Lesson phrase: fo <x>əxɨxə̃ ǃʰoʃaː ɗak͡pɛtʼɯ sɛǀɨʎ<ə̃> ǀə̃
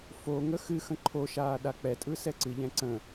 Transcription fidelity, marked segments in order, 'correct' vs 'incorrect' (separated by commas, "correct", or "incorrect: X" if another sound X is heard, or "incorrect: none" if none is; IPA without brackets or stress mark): incorrect: ŋ, incorrect: ɛ̃